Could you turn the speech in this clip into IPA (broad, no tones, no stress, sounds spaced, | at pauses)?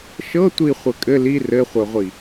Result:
ʃ ɤ tʷ i χʷ ɘ kʼ ɘ l i r ɘ χʷ œ ʁʷ i